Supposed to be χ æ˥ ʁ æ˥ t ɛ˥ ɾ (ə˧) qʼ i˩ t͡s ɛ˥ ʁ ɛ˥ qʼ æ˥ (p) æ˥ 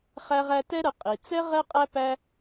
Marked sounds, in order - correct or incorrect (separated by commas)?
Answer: correct, correct